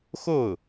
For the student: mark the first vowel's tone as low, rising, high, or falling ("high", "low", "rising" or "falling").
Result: falling